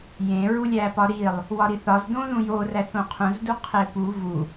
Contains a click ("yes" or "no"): no